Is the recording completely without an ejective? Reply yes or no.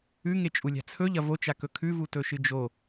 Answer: no